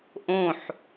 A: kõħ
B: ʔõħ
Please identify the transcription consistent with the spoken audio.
B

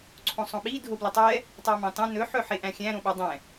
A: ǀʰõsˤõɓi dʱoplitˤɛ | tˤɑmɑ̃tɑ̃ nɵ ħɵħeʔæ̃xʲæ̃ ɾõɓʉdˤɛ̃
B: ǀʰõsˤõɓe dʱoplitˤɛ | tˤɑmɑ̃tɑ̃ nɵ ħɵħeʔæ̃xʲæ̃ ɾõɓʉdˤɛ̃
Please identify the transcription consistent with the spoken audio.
A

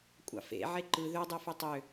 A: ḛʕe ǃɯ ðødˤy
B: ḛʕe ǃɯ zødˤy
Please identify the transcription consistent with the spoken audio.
A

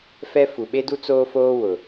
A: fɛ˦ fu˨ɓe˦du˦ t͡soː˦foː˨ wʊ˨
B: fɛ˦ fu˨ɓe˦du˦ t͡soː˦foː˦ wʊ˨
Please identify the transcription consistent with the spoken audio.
B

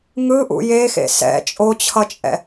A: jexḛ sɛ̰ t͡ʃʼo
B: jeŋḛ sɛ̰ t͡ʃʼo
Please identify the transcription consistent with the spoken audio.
A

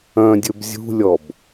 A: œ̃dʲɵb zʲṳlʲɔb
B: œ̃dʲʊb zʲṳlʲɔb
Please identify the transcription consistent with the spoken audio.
A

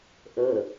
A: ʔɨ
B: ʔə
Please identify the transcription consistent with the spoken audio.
B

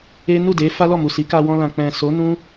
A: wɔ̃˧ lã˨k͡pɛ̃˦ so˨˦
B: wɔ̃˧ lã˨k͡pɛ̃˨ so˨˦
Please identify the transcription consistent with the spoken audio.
B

